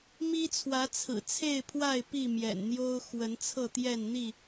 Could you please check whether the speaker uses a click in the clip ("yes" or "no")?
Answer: no